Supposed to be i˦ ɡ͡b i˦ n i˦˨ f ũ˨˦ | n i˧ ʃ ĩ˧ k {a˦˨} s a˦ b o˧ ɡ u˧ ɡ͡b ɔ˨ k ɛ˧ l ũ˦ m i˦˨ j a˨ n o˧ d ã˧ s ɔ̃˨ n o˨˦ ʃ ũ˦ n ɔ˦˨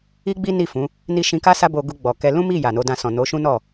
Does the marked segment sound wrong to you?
yes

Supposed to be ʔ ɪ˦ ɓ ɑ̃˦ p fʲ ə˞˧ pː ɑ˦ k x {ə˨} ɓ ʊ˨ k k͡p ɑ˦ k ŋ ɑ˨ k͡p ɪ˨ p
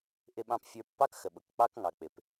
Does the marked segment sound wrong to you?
no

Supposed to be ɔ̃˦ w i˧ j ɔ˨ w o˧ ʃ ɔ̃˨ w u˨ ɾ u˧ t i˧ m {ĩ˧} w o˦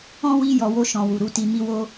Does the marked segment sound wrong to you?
yes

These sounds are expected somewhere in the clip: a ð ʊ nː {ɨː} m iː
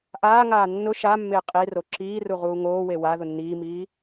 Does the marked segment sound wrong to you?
yes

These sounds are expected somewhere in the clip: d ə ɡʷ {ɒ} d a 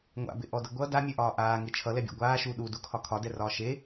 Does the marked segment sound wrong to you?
yes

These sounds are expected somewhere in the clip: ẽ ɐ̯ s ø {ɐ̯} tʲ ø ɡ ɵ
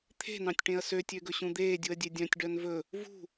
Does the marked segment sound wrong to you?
yes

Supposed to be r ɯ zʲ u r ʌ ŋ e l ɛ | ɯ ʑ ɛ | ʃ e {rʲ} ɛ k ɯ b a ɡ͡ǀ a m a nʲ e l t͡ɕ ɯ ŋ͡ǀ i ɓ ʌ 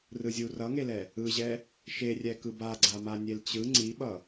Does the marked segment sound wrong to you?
no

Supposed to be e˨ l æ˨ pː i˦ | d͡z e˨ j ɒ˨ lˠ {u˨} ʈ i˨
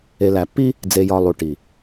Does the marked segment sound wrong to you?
no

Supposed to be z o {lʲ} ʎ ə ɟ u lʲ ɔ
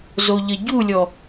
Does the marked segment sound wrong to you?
yes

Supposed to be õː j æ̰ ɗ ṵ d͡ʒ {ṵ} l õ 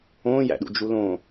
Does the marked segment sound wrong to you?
yes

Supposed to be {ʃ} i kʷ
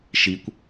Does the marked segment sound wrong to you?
no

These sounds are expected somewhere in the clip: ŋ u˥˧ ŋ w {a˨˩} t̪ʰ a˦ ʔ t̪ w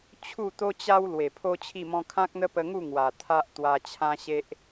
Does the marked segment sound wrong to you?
no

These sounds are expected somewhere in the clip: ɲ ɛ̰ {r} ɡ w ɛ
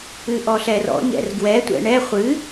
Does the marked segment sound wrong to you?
no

